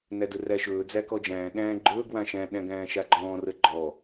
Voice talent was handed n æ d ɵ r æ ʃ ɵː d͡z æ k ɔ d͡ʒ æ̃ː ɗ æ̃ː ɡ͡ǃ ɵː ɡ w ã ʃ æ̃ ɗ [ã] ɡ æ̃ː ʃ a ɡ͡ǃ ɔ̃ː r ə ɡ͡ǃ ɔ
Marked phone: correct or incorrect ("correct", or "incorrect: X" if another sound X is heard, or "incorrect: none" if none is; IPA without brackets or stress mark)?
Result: incorrect: æ̃